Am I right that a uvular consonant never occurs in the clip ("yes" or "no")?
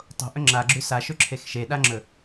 yes